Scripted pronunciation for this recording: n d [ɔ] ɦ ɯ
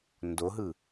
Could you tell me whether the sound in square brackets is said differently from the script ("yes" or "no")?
yes